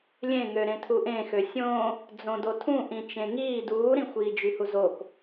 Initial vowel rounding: unrounded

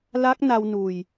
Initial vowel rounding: unrounded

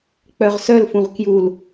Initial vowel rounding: rounded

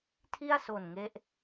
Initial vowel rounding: unrounded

